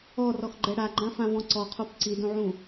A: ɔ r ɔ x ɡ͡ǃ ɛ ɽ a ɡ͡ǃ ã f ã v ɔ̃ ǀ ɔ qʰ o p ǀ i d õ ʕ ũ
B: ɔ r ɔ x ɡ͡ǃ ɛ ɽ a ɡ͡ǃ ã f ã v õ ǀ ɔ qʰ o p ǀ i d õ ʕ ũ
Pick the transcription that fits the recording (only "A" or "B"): A